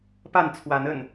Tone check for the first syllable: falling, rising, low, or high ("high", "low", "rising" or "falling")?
falling